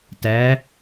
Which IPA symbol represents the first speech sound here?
t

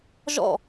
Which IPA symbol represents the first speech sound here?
ʒ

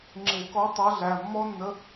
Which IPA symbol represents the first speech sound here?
ŋ͡ǁ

